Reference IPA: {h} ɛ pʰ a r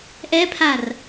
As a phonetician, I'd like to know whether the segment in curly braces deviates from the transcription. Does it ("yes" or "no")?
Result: yes